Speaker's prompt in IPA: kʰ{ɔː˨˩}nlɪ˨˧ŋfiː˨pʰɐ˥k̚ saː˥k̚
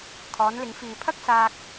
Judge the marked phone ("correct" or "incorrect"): incorrect